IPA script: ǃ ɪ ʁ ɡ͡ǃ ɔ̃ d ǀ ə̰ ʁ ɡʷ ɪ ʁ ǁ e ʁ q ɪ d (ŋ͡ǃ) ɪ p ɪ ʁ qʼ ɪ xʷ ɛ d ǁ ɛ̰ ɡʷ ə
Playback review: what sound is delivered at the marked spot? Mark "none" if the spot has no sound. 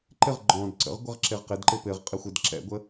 ǃ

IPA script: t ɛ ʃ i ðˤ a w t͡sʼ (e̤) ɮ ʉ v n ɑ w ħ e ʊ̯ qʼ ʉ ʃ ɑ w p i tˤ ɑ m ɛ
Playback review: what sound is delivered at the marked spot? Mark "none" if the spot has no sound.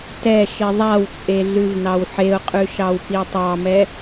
e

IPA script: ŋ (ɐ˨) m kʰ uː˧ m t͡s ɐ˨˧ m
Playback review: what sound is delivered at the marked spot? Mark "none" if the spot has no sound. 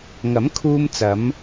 ɐ˨˥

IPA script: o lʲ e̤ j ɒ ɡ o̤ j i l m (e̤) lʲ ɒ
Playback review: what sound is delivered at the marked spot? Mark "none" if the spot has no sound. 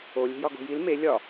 e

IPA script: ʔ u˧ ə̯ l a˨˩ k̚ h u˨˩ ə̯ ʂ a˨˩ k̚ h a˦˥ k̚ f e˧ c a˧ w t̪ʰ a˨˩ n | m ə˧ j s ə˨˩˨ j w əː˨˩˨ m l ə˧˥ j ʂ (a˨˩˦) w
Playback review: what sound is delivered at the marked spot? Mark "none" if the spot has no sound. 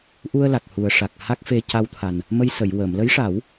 a˨˩˦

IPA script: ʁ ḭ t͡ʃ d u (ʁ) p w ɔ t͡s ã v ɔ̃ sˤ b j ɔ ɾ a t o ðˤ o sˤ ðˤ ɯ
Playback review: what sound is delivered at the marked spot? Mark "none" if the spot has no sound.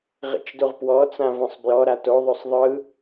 ʁ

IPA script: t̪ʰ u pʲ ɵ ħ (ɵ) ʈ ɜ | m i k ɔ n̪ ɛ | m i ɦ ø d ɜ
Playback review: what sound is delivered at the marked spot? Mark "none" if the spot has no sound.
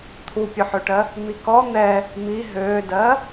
ø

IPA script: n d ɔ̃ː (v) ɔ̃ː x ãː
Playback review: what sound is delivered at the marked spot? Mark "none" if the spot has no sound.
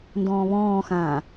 β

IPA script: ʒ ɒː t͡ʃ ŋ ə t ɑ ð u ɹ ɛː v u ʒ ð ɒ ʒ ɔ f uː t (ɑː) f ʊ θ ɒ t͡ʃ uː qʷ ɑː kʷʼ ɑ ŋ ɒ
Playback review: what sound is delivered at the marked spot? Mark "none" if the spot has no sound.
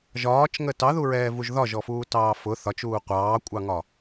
ɑː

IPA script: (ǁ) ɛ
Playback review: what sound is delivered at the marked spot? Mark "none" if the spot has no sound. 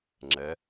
ŋ͡ǁ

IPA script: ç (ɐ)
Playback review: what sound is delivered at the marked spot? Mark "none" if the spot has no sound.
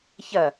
ɐ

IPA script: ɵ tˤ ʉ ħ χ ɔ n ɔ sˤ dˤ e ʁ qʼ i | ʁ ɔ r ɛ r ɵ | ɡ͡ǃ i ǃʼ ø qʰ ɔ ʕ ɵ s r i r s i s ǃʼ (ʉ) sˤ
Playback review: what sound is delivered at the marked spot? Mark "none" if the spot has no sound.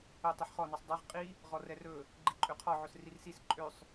ø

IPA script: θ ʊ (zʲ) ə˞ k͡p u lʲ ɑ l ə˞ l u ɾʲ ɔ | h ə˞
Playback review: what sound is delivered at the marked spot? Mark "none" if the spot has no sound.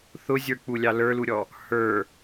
zʲ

